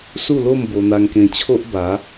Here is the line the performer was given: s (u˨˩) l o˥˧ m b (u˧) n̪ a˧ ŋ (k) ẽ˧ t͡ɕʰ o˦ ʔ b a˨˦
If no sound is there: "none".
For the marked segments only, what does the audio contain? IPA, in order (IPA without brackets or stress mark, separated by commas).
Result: u˥˧, o˧, k